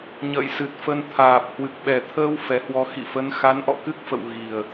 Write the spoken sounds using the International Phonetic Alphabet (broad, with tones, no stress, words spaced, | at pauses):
ɲə̰ː˧˨jsɨ˨˩t̚ fə˧n t̪ʰaː˨˩p̚ hwɨ˨˩k̚ɓɛ˨˩t̪ʰəː˧w fɛ˨˦hwɔ˨˦ xḭ˧˨fə˨˦n xa˨˦nʔɔ̰˧˨kɨ˦˥k̚fə̰˧˨w ɣi˨˩ə̯